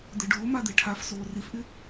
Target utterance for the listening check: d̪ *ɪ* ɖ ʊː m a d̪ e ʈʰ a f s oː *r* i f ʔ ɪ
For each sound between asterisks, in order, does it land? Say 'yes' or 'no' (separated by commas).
yes, yes